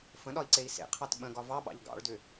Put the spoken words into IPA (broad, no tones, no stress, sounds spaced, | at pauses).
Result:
f ə̃ ɗ ɒ i̯ ǀ e i̯ s ḛ qʰ ɑ t ɓ ə̃ ɡ ɒ v ɑ ɓ ɑ̰ ʎ ɡ ɑ̰ ɭ d ʏ